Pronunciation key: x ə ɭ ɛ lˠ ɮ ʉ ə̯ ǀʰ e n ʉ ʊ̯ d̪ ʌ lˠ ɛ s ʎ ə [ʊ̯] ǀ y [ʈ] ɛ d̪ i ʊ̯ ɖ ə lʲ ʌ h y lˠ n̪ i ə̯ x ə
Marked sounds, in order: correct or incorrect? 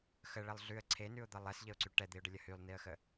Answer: correct, correct

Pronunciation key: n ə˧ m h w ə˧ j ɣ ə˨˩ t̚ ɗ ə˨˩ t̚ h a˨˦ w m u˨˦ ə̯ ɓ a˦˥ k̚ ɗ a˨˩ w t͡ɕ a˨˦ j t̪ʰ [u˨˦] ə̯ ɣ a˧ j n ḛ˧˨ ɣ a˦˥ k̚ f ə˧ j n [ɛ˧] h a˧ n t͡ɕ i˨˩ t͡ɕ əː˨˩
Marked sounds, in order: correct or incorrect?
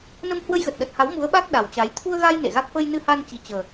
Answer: incorrect: u˧, incorrect: ɨ˧

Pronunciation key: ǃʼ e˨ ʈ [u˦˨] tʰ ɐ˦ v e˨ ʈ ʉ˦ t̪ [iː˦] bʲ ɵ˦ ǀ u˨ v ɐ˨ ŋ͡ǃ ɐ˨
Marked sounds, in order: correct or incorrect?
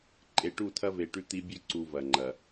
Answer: correct, incorrect: i˦

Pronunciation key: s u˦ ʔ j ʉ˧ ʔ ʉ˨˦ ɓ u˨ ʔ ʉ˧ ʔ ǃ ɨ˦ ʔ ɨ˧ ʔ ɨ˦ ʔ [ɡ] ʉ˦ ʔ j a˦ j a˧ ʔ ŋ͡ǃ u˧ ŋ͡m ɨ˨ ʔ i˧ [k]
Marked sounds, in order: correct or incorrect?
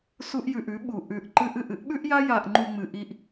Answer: incorrect: ɓ, incorrect: ʔ

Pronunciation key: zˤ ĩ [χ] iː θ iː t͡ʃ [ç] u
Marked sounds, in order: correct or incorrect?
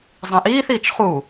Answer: incorrect: ʔ, incorrect: χ

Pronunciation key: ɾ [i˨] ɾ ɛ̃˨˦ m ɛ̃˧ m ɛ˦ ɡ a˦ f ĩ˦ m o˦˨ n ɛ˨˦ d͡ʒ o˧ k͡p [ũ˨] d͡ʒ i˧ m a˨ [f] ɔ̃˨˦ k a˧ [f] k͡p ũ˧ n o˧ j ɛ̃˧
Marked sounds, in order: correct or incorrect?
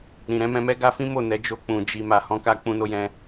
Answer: incorrect: ĩ˨, correct, incorrect: h, incorrect: none

